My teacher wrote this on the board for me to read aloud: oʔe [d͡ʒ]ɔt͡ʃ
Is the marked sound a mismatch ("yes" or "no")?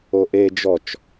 no